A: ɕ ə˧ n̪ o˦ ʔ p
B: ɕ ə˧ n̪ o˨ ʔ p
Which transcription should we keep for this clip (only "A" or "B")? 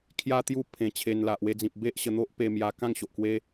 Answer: A